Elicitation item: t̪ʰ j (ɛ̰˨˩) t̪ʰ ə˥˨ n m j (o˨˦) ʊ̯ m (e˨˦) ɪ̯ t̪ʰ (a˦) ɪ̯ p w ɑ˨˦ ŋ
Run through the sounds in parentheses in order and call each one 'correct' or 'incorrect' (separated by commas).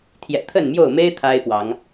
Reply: correct, incorrect, incorrect, correct